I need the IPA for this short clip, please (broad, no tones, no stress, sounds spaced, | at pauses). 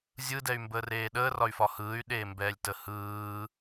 zʲ ɯ d ɛ y̯ m b əː r eː ɗ əː r ɒ y̯ f ɒ h ɯː y̯ ɗ eː m b ɛː lʲ t ə h ɯː